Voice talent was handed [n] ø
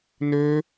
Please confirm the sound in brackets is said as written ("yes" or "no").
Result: yes